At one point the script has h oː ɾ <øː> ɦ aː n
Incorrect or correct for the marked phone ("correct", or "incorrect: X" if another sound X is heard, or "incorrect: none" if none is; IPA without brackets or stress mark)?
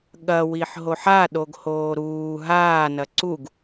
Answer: incorrect: uː